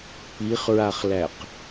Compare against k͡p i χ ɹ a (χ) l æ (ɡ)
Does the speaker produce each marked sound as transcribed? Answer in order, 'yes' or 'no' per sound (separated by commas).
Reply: yes, no